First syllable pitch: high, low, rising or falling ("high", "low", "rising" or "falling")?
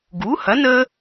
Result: rising